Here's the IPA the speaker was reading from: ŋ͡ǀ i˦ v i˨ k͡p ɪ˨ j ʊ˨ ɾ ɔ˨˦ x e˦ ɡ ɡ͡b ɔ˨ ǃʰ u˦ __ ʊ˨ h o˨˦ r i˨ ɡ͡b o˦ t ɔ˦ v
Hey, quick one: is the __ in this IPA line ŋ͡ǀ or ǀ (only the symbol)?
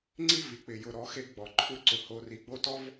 ǀ